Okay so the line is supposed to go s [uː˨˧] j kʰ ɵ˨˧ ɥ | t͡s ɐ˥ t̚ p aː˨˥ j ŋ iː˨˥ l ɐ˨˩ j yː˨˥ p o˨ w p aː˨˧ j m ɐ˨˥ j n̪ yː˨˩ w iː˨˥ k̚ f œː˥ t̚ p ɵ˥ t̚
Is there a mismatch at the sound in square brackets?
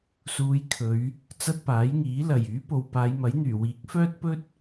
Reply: no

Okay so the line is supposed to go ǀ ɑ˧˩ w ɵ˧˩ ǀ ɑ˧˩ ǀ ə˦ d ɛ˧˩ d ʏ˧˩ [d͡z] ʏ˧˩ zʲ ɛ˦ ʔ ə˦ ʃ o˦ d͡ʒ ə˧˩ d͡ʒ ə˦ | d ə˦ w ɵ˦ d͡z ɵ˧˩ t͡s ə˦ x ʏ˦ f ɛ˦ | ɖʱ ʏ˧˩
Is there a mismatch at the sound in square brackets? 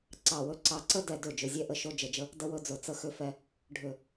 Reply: yes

